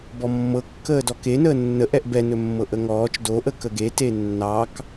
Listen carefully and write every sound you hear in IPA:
bɔmːɤkːəːd ɔkenəː nːəʔɛʔ bɛnɵ mːɤʔəŋɔːt͡ʃ doʔə kəɡe tenːɑk

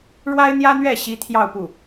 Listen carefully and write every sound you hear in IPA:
ɻwa˥ɪ̯n̪jä˥n̪ɥɛ˥˩ ɕi˥t̪ʰjɑ˥˧ʊ̯pu˥˩

